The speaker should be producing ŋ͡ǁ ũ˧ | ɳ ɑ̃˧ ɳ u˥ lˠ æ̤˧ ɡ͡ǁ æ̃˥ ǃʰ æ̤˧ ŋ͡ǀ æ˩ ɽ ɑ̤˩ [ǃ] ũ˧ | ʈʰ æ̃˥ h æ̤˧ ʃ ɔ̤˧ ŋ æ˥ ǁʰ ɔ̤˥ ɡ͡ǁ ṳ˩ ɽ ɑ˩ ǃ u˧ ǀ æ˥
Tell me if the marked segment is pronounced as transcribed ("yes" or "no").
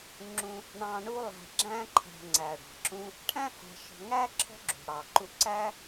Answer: no